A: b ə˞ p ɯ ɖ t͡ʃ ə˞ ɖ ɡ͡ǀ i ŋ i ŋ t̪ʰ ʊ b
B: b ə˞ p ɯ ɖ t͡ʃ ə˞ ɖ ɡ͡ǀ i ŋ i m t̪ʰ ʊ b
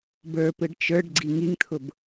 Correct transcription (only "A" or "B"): A